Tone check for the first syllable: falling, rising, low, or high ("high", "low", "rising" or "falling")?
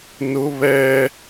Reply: high